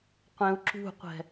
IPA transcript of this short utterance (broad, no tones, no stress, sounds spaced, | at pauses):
qʷ ẽ u̯ ǁ ṳ qʷ ɛ̤